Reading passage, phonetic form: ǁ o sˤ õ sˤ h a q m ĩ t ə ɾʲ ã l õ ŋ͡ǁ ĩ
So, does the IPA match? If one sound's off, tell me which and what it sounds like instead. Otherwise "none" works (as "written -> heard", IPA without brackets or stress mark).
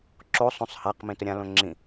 none